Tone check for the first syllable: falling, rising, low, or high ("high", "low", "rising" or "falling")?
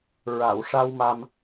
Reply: low